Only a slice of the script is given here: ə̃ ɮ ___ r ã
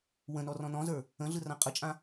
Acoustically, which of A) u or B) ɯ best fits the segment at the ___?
B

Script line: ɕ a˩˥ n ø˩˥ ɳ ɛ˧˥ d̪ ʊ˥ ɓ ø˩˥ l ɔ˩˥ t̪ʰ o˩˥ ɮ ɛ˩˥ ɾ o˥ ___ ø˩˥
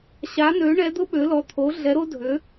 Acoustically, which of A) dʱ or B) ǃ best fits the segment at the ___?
A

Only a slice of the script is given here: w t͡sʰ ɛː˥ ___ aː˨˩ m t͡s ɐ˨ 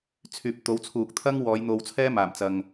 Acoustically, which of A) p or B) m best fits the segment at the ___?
B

